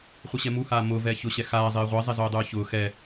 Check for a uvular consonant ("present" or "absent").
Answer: present